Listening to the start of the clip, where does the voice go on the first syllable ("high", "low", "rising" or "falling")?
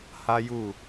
high